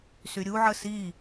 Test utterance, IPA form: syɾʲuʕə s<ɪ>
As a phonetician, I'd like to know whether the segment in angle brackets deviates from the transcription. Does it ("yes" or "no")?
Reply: yes